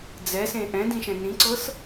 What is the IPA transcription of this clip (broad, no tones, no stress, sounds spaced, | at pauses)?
d͡z ɛ s ẽ ʔ ɛ̃ d ĩ ʃ ɛ̃ n ĩ ǀ ɤ s